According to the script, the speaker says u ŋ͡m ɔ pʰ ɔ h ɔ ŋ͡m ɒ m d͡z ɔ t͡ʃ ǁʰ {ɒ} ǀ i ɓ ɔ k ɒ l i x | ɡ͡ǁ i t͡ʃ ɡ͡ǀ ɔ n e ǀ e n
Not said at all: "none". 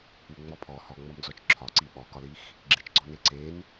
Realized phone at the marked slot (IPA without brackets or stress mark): ɒ